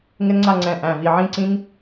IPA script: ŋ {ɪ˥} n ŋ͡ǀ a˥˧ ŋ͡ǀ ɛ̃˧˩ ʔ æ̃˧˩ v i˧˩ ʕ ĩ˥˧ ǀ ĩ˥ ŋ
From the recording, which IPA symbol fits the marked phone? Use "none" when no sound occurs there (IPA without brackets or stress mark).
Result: ɪ˥